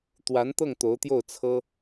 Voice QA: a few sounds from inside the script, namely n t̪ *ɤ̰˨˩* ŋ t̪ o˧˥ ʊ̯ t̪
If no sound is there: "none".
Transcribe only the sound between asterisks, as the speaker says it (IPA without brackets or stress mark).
ɤ˥˩